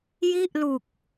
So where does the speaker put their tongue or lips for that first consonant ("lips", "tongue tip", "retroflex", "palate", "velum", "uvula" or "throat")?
palate